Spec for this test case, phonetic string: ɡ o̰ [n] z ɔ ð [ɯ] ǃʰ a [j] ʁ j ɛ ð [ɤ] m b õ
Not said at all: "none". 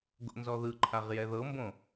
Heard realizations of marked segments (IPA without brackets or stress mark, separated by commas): n, ɯ, none, ɤ